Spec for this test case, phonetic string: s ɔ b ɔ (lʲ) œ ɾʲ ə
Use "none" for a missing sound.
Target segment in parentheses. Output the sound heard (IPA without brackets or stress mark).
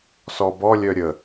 lʲ